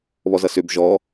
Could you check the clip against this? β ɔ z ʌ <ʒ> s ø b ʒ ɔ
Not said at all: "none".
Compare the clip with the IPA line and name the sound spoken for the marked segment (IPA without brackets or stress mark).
none